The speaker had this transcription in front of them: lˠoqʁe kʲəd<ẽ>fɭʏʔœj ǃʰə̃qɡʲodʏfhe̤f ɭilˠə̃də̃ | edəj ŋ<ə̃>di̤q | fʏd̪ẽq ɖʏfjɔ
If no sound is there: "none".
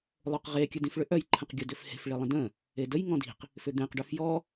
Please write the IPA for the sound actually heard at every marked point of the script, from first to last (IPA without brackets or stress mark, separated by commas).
ĩ, ɔ̃